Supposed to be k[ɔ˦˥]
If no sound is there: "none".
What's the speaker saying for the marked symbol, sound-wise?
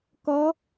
ʌ˦˥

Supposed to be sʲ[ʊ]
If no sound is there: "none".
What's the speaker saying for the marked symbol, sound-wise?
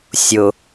ʊ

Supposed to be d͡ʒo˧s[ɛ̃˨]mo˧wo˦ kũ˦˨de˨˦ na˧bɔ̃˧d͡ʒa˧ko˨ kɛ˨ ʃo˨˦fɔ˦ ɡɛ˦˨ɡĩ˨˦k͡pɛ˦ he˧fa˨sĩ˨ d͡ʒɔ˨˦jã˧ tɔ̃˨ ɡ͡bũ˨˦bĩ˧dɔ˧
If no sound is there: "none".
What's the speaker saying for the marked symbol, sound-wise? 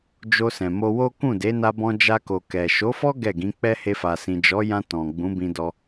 ɛ̃˨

